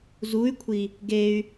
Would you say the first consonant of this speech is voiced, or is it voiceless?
voiced